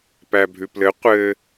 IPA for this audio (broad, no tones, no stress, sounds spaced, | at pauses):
p æ bʱ ʉ p l ɘ qʷ ɘ